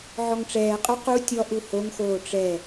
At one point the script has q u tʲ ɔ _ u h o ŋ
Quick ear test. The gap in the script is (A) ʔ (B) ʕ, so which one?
A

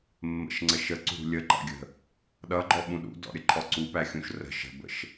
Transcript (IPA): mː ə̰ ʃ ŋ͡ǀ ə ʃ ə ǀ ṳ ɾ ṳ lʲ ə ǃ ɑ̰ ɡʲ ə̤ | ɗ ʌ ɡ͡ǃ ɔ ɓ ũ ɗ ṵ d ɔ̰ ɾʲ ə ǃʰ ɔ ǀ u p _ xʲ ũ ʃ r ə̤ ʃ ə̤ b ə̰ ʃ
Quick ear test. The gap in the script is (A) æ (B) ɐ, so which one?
A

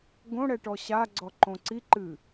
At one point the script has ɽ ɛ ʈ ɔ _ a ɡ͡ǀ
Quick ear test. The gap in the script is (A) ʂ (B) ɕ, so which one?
B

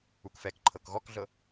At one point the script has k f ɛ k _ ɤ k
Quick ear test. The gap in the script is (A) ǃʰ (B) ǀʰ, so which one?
A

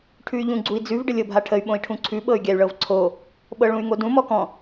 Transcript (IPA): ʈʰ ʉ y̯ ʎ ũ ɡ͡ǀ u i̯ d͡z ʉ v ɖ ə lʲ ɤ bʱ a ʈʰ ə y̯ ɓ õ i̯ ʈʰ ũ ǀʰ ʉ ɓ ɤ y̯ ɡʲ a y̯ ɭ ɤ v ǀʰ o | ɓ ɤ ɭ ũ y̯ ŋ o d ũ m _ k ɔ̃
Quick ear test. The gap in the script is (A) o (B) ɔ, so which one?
B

